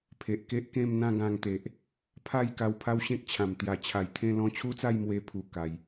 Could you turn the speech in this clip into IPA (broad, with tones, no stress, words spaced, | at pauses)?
pʰe˨ʔke˦ʔkẽ˥˧m n̪ã˥˧ɡã˧ŋt̪e˨ʔ | pʰa˥˧j ka˧wpʰa˦wɕẽ˦k̚t͡ɕʰã˨˩m t̪ja˨˩t͡ɕʰa˨˩j t̪ʰẽ˥˧lɔ̃˦ t͡ɕʰu˦t͡sa˥˧jmwe˧ pʰu˨˩ka˨˩j